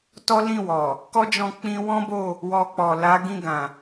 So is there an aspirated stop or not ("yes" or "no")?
no